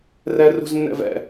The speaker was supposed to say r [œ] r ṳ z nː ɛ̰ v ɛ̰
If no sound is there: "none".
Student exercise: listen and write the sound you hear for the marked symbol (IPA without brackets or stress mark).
ɛ